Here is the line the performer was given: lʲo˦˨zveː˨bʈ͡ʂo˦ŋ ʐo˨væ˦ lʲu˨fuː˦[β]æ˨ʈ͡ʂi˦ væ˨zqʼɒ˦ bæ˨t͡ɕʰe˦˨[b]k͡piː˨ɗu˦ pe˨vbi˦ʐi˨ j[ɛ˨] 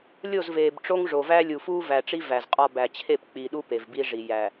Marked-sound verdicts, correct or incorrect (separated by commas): incorrect, incorrect, incorrect